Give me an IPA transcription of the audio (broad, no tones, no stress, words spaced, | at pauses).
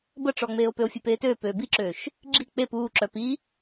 bəʈ͡ʂɔŋ͡meːo̯ pøo̯fʲepeːtøː pøːbiǁøːʃ | ɡ͡ǁi k͡pep uːǁœ pi